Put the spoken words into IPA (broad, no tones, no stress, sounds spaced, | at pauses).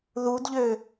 ð u d ʎ ø